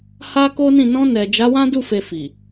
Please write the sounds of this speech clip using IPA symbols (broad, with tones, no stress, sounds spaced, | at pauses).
h a˦ k o˦ n ĩ˦˨ n ɔ̃˧ n ɛ˨ d͡ʒ a˨˦ w ã˦ d u˦˨ f e˨ f i˨